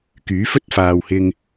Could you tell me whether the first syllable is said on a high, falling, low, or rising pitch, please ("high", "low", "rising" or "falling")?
rising